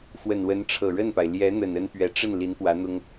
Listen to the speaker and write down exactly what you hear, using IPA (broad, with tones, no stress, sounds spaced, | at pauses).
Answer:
f w ə˨˩ n w ə˧˥ n ʈ͡ʂʰ ɤ˨˩ ɻ ə˥˩ n p a˩ ɪ̯ l j ɛ˧˥ n̪ ə˨˩ n ə˥ n p ɥ ɛ˧˥ ʈ͡ʂ ə˥˩ n l i˧˥ n p w ä˧˥ n̪ ʊ˥ ŋ